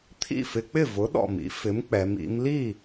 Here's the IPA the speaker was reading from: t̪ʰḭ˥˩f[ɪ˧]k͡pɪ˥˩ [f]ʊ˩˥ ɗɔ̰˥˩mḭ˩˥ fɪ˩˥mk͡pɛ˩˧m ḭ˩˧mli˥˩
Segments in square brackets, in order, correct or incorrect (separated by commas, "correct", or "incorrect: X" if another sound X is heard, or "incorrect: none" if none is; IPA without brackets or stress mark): correct, incorrect: v